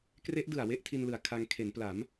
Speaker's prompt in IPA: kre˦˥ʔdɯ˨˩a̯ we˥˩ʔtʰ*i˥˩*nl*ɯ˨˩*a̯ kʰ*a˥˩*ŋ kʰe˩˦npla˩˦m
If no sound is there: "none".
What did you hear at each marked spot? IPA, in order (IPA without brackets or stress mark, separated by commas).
i˧, ɯ˨˩, a˧